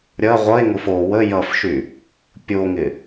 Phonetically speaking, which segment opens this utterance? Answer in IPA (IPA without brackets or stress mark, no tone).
ɾʲ